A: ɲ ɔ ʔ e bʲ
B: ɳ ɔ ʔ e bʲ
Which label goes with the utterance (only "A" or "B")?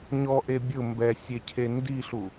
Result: A